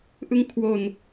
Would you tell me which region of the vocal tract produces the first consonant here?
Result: throat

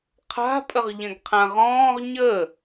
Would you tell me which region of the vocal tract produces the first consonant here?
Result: uvula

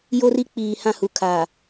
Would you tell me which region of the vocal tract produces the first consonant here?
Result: palate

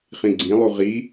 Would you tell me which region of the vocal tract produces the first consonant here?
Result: uvula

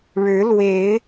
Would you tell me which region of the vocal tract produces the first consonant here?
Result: retroflex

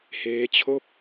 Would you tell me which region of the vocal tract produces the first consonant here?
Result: throat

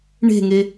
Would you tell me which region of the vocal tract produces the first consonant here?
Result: retroflex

